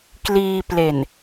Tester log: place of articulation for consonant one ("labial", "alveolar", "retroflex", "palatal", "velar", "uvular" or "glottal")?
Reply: velar